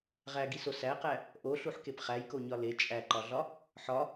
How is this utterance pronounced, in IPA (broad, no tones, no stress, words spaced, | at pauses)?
ʁæɡiso sæqæ | ʔoɬuħkep χæjkoɲɒ le t͡ʃʼæǃɒɮɒ | ħɒ